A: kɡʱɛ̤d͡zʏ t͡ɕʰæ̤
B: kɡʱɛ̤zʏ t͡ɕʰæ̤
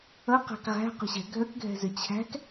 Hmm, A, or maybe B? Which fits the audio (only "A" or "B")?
B